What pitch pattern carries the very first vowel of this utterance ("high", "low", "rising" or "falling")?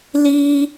high